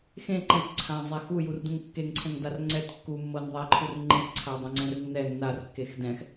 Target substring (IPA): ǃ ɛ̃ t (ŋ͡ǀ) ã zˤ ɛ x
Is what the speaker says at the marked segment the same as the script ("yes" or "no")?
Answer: no